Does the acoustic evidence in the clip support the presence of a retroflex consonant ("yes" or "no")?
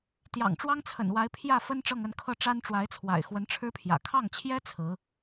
yes